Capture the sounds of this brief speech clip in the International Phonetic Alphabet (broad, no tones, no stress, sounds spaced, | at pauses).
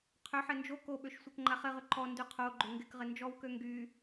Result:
qʰ ʏ ħ ɪ n d͡ʒ o k o ɓ ø ʃ sʷ e k ŋ͡ǃ a χ ɪ ʁ ʏ ǃ ɔ n d y qʰ o ɡ͡ǃ ʏ ŋ ɡ ɪ k ʁ ɪ n d͡ʒ ɔ w k ø ŋ ɡ y